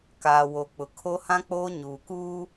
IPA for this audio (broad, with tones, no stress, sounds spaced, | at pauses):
k aː˨ w o˨ k͡p ʊ˨ kʰ o˦ h ã˦ k͡p oː˦ ɲ uː˨ k uː˦